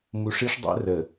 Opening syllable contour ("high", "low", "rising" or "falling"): low